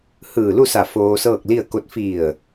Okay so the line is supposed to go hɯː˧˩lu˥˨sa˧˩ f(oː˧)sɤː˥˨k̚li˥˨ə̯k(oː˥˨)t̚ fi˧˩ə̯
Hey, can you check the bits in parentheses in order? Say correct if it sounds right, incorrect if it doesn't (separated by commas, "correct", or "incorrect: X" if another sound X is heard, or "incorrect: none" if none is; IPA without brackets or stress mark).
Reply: correct, incorrect: o˥˨